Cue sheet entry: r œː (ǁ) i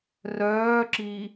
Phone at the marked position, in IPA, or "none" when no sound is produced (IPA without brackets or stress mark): ǁ